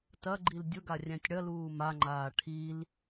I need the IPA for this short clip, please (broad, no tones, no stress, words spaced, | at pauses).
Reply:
tɐɡ͡ǃil dʲʊɡarʲæ̃tʲ ɽɐluː maŋ͡ǃaː ʈʰil